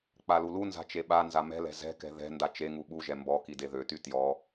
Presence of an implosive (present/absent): present